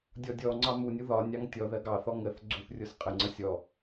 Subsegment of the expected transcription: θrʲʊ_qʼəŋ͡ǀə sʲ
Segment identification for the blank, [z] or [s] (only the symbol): s